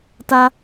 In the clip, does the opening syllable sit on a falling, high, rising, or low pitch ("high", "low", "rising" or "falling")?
high